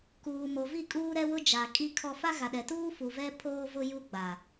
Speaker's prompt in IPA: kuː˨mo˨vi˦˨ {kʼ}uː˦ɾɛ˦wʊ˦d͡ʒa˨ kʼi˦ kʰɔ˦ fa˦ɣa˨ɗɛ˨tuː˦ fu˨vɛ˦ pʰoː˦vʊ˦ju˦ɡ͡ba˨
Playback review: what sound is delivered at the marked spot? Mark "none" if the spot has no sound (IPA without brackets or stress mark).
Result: kʼ